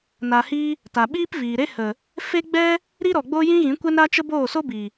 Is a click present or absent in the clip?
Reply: absent